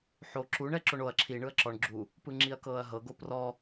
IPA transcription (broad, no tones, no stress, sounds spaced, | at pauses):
ħ o ǁ u ɳ ɛ ǁ o ɳ o ɐ̯ ǁʰ i ɳ ɯ ɐ̯ ǁ ɔ ɳ ɡ͡ǁ u | p ɯ ŋ͡ǁ i ɐ̯ k ɤː ɐ̯ ɦ ɤ ɡ o p r ɔ